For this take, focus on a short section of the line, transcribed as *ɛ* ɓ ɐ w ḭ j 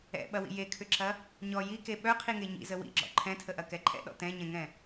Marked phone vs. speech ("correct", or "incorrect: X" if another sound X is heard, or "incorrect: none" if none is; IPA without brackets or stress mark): incorrect: ɛ̰